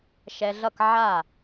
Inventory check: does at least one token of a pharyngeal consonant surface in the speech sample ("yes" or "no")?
yes